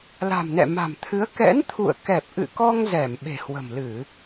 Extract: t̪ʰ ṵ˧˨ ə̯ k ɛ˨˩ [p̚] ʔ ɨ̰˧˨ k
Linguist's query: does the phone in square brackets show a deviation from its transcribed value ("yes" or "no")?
no